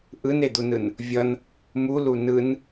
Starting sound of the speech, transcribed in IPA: ʔ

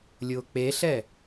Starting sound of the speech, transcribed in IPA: lʲ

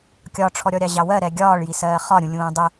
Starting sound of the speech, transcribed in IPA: kʲ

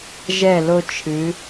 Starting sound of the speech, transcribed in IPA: ʒ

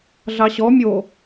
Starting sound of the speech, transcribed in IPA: ɮ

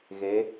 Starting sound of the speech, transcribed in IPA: ɣ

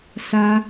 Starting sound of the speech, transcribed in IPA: s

